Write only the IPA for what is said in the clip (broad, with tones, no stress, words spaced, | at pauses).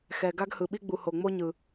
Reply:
xɛ˨ ɡa˦ɡhɯ˨ɓi˦ɡ͡bu˨ ho˨ŋ͡mo˦ɲɯ˨